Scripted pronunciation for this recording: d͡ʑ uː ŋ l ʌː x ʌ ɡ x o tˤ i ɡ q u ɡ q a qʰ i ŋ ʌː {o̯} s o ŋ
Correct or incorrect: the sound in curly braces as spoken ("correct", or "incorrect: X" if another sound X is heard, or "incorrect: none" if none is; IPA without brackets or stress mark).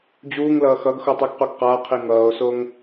correct